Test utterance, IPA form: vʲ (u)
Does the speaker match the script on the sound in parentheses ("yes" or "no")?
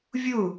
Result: yes